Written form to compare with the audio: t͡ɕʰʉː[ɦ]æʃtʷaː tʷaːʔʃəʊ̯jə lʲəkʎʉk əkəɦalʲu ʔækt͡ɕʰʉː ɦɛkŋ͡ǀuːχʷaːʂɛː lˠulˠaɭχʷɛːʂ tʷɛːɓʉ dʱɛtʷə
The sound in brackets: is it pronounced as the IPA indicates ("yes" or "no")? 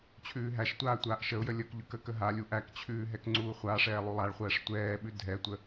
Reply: yes